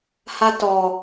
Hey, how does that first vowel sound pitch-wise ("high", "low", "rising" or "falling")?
high